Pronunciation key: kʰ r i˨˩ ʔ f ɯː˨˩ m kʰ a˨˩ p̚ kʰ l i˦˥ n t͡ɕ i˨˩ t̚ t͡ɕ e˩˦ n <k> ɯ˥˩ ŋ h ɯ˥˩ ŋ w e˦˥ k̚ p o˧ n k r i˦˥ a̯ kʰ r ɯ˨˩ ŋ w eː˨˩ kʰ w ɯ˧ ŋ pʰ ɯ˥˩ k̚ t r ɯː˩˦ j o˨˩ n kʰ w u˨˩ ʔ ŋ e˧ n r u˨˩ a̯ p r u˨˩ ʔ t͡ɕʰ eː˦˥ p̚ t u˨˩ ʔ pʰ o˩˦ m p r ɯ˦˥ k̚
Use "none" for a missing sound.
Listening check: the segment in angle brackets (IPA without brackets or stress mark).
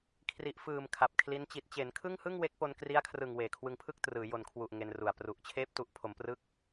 kʰ